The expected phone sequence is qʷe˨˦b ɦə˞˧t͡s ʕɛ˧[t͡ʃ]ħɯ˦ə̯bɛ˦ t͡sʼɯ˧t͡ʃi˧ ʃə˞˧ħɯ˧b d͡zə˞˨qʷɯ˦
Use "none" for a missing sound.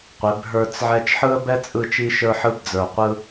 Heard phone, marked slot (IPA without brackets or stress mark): t͡ʃ